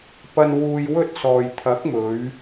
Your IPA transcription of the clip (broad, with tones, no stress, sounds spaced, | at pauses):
p ɐ˧ n w uː˧ j w ɵ˥ t̚ s ɔː˨ j t̪ʰ ɐ˨˥ k̚ m ɵ˨˧ ɥ